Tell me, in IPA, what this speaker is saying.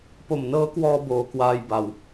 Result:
p o˨˩ m n ɤː˦˥ k w ɔː˧ b oː˧ k w aː˧ j b a˨˩ w

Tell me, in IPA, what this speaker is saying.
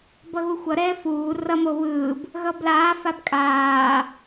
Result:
b ʌ ɣ u xʷ ʌ ɾ ɛː f uː r ʌ m o β ɯː b | ɣ ʌ b l aː f a b kʼ aː

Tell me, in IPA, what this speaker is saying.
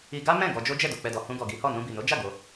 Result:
i˧ ɡ a˦ m ɛ̃˦˨ ɡ ɔ˧ d͡ʒ o˦ d͡ʒ ɛ˦˨ d o˨ k͡p ɛ˨ d ɔ˨ h ũ˧ ɡ ɔ˨ ɡ i˨˦ h ɔ˦˨ n ũ˧ b i˨ n o˨˦ d͡ʒ a˦˨ ɡ o˧

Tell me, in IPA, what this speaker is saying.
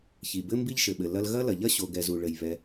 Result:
ç i˩ b ɘ˥ m b i˥ ʎ ʃ ɘ˩ ɓ ɘ˩ l ɐ˥ l ɣ ɐ˥ l ɐ˩ ʎ ɐ˥ ɕ o˩ ɡ ɛ˩ z u˩ ɭ ɘ˩ j β ɛ˩

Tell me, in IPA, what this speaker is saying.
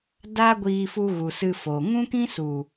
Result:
d aː˦ ɡʷ iː˧ f u˧ ɣ u˨ s ɨ˧ f oː˨ ŋ ũ˦ k ĩ˦ s u˨

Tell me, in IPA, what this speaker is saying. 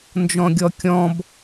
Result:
n d͡ʒ ɔ̃ ɡʲ ɔ kʲ ɔ̃ b

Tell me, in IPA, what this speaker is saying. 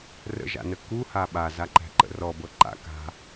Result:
r ə̰ ʒ a̰ n ə k u h a ɓ a z a ǃ æ̤ ǃ ə̰ r ɔ b ɤ ǃ a̰ k a̤

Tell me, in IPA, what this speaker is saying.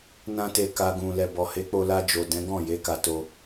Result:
n ã˧ t e˨ k a˨ ɡ ũ˨ l ɛ˨ b ɔ˨ h e˨˦ k͡p o˧ l a˧ d͡ʒ o˨ d ɛ̃˨˦ ɡ ɔ̃˦˨ j e˨˦ k a˧ t o˧

